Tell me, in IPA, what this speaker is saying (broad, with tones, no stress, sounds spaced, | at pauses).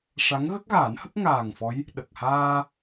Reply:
ʂ a˧˥ ŋ ɣ ə˦˥ k̚ ɣ aː˨˩˦ n h ə˦˥ k̚ ŋ aː˨˩ ŋ f ɔ˧˥ j | ɗ ə˨˩ k̚ h aː˧